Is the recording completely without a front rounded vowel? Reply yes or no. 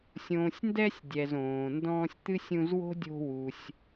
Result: yes